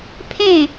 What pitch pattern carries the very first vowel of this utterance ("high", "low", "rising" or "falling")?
falling